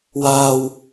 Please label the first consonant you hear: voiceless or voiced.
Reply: voiced